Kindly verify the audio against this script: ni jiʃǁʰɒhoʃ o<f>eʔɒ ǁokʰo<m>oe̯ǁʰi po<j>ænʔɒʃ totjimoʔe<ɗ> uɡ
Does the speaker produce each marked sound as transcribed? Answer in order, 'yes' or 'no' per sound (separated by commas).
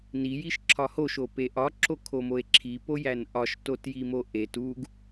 no, yes, yes, no